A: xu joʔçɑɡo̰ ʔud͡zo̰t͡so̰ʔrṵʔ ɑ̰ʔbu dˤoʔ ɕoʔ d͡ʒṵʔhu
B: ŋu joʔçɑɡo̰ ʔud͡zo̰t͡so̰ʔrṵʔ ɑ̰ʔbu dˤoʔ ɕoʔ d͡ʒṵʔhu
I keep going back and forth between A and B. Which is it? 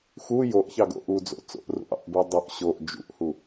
A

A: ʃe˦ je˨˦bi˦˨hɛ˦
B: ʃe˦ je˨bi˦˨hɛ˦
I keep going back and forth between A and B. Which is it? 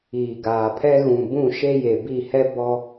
B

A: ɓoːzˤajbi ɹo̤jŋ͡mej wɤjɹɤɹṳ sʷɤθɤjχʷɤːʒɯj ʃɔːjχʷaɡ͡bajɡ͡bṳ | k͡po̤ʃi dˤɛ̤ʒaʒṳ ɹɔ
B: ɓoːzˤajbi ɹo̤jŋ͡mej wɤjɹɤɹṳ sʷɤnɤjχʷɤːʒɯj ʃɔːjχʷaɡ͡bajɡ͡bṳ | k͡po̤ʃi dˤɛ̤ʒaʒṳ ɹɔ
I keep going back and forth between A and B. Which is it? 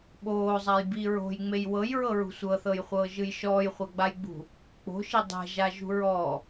A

